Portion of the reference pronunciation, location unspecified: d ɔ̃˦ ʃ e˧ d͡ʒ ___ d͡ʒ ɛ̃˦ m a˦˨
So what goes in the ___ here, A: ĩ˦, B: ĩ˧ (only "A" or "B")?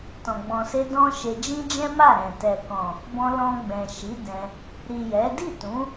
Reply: A